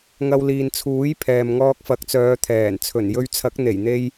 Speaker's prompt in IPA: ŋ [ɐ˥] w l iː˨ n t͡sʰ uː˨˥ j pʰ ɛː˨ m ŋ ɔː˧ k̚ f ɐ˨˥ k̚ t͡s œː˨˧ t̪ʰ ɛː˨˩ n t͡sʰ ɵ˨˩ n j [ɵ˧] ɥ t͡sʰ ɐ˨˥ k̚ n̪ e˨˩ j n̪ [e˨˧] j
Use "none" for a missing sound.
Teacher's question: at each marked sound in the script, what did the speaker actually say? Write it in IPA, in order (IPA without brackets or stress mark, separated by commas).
ɐ˧, ɵ˧, e˧